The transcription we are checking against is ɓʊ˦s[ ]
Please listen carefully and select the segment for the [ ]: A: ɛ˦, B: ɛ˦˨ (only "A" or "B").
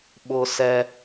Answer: A